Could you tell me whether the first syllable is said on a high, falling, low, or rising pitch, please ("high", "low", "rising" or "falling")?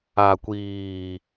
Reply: low